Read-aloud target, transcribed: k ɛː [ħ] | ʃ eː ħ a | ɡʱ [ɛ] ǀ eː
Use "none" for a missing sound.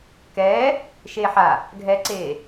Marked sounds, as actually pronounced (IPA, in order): none, ɛ

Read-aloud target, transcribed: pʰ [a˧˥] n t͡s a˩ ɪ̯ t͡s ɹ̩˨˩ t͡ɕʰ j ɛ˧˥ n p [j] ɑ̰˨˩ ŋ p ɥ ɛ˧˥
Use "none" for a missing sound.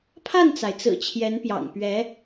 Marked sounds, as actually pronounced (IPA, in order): a˥˩, j

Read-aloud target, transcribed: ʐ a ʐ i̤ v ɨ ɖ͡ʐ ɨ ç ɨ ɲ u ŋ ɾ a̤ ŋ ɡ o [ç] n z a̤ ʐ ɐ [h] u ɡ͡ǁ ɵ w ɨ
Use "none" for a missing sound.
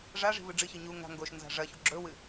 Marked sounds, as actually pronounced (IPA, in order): ʃ, ç

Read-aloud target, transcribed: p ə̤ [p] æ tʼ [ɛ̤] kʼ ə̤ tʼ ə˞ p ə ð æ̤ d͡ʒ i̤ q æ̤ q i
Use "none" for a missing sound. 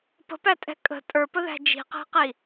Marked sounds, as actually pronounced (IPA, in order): p, ɛ̤

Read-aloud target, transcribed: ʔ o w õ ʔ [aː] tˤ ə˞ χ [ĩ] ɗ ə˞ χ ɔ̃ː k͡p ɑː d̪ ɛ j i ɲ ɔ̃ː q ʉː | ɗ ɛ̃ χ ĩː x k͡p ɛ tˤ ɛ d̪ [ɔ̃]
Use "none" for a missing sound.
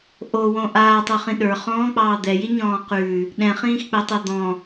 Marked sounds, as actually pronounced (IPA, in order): aː, ĩ, ɔ̃

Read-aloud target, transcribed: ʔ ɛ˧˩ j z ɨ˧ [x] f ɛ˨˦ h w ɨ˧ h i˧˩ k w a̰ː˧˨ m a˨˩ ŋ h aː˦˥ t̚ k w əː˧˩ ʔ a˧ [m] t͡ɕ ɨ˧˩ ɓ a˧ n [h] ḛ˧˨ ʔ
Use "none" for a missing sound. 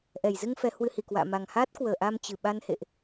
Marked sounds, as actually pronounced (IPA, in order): ŋ, m, h

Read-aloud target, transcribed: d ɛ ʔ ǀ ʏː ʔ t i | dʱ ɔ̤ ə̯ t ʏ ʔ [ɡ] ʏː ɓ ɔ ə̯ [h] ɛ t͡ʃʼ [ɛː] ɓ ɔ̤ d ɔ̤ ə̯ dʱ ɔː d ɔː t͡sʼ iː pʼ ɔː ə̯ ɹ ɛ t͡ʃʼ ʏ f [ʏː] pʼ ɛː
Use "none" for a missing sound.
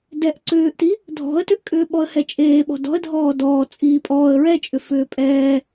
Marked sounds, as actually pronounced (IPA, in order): kʼ, h, eː, ʏː

